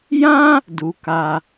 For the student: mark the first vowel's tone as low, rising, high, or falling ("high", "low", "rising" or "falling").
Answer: high